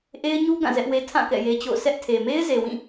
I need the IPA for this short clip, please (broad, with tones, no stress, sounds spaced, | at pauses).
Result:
ʔ e˦ ɪ̯ ɲ u˦ ɡ ã˦˨ z ɛ˦ ʔ w e˦ tʰ ã˦˨ k ɛ̰˦˨ j e˦ t͡ɕ o̰˦˨ ʊ̯ s ɛ˦ ʔ tʰ e˨ m e˦ ɪ̯ z e˨ w ĩ˦˨